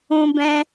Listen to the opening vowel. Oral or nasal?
nasal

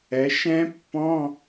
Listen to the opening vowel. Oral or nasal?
oral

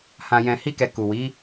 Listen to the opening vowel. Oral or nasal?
nasal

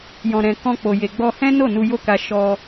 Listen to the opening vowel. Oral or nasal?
nasal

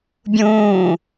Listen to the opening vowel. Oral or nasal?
nasal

